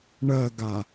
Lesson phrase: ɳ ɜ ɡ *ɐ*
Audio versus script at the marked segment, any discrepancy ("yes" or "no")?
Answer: yes